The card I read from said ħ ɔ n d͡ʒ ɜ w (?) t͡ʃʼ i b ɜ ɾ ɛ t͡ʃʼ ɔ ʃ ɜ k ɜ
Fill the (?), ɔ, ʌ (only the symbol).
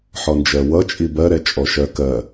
ʌ